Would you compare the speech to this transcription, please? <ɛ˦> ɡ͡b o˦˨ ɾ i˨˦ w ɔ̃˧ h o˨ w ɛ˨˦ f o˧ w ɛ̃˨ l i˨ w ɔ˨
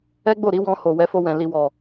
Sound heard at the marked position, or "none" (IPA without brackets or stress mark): ɛ˦